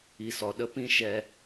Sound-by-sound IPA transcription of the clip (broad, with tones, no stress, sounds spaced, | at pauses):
i˨ s ɔ˨ ɗ ə˧ p ĩ˦ ʃ ɛ˧